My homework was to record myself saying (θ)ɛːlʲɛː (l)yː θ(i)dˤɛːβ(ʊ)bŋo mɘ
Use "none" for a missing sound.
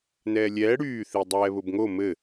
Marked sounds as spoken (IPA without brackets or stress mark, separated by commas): n, ɽ, i, ʊ